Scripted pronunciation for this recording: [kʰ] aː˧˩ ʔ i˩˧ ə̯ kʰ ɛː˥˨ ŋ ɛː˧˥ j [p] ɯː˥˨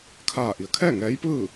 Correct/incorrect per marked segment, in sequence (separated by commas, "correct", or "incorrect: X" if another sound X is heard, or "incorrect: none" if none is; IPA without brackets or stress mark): correct, correct